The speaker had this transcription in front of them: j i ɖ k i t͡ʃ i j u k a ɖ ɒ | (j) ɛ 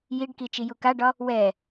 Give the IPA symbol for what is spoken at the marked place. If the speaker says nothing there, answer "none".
w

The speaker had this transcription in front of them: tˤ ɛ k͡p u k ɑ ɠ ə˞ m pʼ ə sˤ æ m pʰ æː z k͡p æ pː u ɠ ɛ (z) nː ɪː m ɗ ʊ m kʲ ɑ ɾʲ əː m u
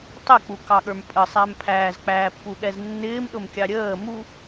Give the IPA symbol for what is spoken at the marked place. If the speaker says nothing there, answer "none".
z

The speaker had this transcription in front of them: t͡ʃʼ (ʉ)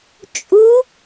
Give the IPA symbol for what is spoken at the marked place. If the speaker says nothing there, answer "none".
u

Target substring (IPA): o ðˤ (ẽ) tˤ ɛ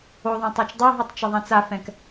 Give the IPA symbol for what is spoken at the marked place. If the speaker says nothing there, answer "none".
ɛ̃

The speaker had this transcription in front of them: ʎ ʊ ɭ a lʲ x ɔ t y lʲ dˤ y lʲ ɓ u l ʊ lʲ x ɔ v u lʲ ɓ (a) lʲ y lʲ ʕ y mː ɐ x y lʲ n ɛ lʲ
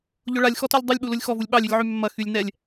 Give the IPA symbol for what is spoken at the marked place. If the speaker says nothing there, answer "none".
ɑ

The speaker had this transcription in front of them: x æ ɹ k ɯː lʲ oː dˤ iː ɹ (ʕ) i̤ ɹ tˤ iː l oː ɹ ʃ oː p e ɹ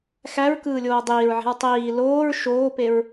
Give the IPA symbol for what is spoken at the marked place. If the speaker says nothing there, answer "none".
ʕ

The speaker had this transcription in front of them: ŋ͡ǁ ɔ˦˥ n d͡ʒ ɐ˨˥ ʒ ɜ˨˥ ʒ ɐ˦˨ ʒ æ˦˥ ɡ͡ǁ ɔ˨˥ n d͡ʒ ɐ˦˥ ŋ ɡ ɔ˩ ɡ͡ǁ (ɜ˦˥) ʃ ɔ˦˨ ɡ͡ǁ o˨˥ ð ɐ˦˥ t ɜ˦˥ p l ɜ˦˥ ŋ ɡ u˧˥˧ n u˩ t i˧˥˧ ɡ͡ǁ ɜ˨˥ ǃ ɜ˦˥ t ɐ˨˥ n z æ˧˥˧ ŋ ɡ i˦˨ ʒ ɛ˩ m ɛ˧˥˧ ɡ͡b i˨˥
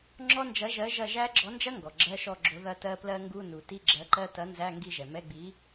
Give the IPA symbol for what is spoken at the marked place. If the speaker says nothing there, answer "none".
ɜ˧˥˧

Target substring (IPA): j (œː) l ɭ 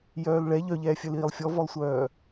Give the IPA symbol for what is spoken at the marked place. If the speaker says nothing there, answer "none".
œː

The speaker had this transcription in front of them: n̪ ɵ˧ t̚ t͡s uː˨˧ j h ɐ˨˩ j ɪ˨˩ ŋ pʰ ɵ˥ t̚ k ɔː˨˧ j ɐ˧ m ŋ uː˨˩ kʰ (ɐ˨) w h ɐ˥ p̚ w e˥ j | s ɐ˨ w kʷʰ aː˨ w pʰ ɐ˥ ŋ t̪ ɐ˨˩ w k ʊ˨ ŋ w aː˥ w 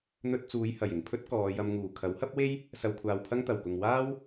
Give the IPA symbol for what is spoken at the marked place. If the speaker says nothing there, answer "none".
ɐ˨˥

